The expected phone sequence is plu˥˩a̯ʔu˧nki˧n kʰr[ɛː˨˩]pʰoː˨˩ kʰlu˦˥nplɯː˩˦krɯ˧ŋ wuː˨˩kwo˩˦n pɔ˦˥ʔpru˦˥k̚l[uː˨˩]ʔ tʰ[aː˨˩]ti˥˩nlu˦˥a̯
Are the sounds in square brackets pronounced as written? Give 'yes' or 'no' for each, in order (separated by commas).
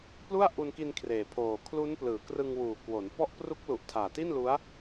no, no, yes